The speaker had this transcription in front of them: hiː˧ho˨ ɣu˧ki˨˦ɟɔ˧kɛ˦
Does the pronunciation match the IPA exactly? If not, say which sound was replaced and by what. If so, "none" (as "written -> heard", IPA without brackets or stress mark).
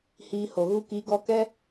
ɟ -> ɡ